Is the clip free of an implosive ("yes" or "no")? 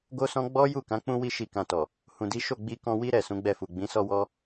yes